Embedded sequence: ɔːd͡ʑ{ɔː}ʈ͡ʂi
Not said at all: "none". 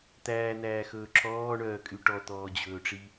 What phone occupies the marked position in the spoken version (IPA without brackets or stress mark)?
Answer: ɵː